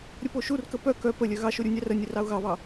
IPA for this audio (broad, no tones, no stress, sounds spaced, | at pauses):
ɾʲ ə p o ʃ u r k ə p œ k œ p ə lʲ œ ɣ ɑ ʃ o ɾʲ u nʲ ɑ r ə nʲ ɘ r ɑ ʊ̯ ɣ ɑ β ɑ